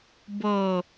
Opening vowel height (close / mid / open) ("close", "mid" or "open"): mid